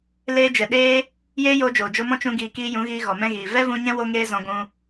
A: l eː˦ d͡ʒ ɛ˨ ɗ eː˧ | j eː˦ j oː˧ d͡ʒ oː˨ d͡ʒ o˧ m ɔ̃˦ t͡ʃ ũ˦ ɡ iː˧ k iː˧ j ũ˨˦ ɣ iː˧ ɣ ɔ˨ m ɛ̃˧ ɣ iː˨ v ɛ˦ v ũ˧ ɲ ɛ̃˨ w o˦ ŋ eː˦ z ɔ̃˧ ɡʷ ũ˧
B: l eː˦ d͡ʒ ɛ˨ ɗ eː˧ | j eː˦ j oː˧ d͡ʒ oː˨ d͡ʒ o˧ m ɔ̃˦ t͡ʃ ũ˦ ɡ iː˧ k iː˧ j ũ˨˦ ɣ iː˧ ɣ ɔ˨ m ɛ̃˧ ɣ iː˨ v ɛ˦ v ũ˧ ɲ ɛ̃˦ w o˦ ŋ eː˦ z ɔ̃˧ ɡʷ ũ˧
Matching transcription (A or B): B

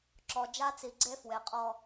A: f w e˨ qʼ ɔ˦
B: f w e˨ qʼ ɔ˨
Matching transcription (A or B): A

